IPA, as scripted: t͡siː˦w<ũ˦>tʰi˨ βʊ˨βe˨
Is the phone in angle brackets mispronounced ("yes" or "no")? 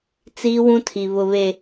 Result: no